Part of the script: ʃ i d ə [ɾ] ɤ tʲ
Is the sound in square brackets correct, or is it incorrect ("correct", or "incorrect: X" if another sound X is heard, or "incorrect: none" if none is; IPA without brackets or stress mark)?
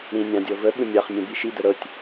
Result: correct